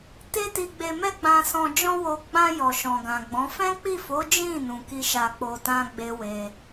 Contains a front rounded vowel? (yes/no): no